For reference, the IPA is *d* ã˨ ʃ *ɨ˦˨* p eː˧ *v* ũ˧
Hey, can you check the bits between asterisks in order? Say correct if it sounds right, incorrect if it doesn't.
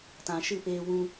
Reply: incorrect: t, correct, incorrect: w

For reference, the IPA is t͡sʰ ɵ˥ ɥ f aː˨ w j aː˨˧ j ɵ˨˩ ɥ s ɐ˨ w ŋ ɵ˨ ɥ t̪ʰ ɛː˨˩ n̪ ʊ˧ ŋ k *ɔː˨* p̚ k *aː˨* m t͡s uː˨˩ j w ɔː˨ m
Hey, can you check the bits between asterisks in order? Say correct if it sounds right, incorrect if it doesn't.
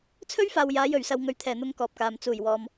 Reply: correct, correct

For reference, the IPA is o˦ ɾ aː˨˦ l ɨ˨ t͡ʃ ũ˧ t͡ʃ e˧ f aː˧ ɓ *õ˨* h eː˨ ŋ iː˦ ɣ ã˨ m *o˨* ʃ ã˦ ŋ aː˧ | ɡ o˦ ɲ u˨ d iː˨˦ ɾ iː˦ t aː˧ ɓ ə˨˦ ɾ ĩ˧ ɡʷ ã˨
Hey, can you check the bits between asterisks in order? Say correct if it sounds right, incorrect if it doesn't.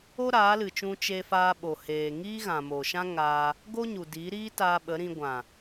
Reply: incorrect: o˨, correct

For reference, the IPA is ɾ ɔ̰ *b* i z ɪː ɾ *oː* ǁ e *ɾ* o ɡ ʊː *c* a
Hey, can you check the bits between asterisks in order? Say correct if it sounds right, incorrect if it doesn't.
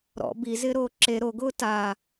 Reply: correct, correct, correct, incorrect: t

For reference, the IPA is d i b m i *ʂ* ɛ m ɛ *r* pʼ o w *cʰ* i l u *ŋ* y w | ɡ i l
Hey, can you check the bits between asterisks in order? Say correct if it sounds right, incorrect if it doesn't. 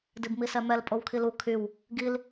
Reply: incorrect: s, incorrect: l, incorrect: kʰ, incorrect: kʰ

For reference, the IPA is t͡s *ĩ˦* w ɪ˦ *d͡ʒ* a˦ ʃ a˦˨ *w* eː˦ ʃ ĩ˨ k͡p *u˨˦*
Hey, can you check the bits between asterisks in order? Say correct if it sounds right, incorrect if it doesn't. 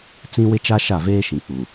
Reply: correct, incorrect: t͡ʃ, incorrect: v, incorrect: u˨

